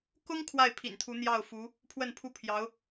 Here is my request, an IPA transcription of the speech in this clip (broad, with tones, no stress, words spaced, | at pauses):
kʊ˥ŋ kʰwa˥˩ɪ̯pʰḭ˨˩nt̪ʰu˧˥ n̪jɑ˥˩ʊ̯fu˧˥ | pʰwə˥˩npʰu˥ pʰjɑ˧˥ʊ̯